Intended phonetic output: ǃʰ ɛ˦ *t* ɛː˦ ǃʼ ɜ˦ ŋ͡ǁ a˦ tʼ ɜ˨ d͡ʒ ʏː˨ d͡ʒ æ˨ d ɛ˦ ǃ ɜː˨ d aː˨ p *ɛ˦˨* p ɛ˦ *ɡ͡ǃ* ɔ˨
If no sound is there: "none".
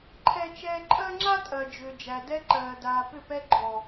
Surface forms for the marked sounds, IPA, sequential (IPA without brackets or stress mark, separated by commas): t͡ʃ, ʏ˦˨, ɡ͡ǃ